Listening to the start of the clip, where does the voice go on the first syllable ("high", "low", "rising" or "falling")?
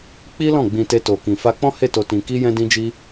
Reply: high